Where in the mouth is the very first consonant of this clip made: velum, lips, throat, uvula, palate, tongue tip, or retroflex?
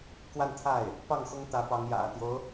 velum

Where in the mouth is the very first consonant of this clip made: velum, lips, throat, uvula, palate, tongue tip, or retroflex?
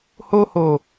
throat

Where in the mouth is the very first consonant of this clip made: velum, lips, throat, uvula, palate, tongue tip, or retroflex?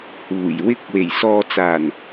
throat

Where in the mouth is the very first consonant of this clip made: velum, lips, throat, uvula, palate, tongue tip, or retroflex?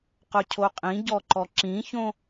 uvula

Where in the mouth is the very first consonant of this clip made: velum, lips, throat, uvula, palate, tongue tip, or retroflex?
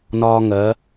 tongue tip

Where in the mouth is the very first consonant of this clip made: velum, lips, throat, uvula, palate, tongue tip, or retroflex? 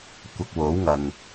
velum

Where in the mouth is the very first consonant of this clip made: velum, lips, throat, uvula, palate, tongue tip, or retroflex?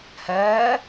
throat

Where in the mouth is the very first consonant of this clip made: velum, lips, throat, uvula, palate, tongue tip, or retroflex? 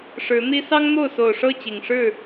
retroflex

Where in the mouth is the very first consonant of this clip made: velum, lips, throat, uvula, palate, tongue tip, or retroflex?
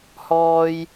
throat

